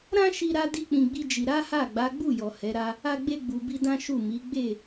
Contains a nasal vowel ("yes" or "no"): yes